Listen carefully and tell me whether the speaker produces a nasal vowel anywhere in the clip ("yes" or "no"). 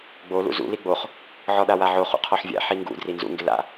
no